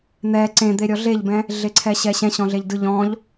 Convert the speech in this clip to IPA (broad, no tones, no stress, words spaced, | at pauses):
n̪ɛ ǀẽd̪eɾʲɔ ɮeʎbɛ̃ | ɮeǀʰɛɕɛɕɛ̃ ɕɔ̃ɮeʎdɯ ʎɔ̃ʎ